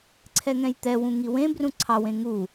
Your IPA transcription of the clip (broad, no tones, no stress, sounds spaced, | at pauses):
ǀʰ ɛ ŋ ɛ̃ j t̪ ɛ w ũ ŋ i w ẽ b r ũ ǀʰ ɑ w ẽ ŋ u